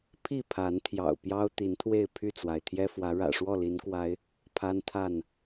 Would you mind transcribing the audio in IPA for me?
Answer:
pʰ i˥˨ pʰ a˨˦ n t̪ʰ j ɑ̰˨˩ ʊ̯ p j ɑ˦ ʊ̯ t̪ i˨˦ n t̪ʰ w e˥˨ ɪ̯ pʰ y˥˨ t͡s w a˩ ɪ̯ t̪ʰ j ɛ˦ f w ä˨˦ ɻ ä̰˨˩ ʂ w ɔ˥˨ l i˨˦ n k w a˨˦ ɪ̯ | pʰ a˦ n t̪ʰ a˥˨ n

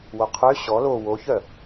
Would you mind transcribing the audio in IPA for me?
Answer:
w o qʰ ø ɕ ɔ l o w o ç œ

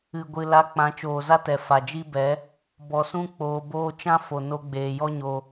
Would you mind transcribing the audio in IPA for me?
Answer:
ɨ˨ ɡʷ ɨ˨ l a˧ k͡p ã˨˦ t͡ʃ oː˨ z a˦ t ɛ˨ f a˨ d͡ʒ i˦ b ɛ˨˦ | b ɔ˨ s ũ˦ k͡p oː˧ b oː˦ t͡ʃ ã˦ f o˨ n o˦ ɡ͡b eː˧ j ɔ˦ ɲ o˧

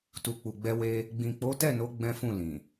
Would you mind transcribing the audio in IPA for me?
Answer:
t u˨ k͡p u˨ ɡ͡b ɛ˧ w e˦ | ɡ͡b ĩ˨ k͡p o˨˦ t ɛ˦˨ n o˨˦ ɡ͡b ɛ̃˦ f ũ˦˨ l ĩ˨

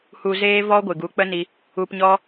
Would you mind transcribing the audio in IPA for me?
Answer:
h u˧ z eː˦ v ɔ˦ ɡʷ ɨ˨ ɡ u˨˦ k͡p ə˦ n i˧ | u˧ p ɲ ɔ˦

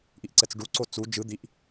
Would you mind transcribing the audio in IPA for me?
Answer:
ʔ i ʔ ǀ ɛ t͡s ɖ u ǀ o t͡s u d͡ʒ ɯ d̪ i ʔ

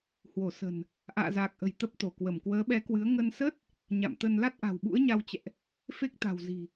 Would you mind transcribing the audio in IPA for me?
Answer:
h w o˧˩ s ə̤˨˩ n | ʔ a̰ː˧˨ z aː˨˩ k̚ ʔ ə̤˨˩ j t̪ ə˦˥ p̚ t̪ o˧˩ k w ə˧˩ m k w əː˨˦ ɓ ɛ˨˦ k w ɨ˨˦ ə̯ ŋ ə˧ n s ə˦˥ t̚ | ɲ a̰˧˨ m t̪ ə˧ n l a˦˥ t̚ ʔ a̤˨˩ w ɓ ṵ˧˥ ə̯ ɲ a˧ w t͡ɕ ɛ̰˧˨ ʔ | f e˦˥ k̚ t̪ a̤˨˩ w z i̤˨˩

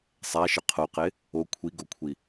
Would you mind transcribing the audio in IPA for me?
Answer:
sˤ æ ʃ ə qʰ o q e | o kʷʰ i ɡ o kʷʰ i

